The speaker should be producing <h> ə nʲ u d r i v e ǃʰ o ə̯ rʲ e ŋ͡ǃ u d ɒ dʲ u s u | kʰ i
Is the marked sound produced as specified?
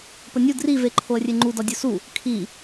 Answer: no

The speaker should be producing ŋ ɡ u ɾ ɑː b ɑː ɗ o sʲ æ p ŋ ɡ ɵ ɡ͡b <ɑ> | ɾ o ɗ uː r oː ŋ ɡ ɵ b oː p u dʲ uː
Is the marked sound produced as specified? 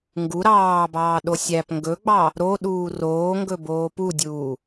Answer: yes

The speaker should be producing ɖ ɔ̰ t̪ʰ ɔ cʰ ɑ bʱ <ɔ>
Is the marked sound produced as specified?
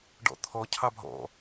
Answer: no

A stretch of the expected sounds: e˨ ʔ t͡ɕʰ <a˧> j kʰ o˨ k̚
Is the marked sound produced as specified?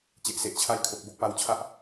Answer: yes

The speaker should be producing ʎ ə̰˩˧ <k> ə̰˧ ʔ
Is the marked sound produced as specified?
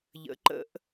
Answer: no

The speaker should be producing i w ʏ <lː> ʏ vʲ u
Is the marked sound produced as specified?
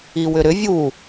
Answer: no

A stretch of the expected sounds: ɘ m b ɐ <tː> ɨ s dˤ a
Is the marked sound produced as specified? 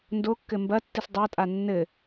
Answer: yes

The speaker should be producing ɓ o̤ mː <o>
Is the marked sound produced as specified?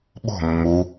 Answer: no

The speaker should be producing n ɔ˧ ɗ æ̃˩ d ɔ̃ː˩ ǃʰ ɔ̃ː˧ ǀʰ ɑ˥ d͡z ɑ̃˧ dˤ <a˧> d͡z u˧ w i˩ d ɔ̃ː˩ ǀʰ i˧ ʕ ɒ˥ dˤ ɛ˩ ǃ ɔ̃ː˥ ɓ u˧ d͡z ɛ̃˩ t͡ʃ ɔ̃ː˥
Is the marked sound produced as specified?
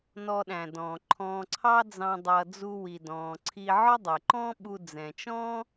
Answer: no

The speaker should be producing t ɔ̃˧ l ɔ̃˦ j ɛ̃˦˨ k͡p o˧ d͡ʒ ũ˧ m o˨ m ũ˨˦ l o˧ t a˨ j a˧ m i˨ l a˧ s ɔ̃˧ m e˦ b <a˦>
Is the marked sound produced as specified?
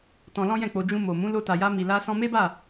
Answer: no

